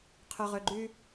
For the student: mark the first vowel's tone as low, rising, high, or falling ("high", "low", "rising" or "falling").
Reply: low